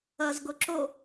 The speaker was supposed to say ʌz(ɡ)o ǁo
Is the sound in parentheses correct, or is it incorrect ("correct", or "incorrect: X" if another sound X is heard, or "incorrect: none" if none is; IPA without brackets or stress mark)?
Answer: correct